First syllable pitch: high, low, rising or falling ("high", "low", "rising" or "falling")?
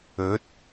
rising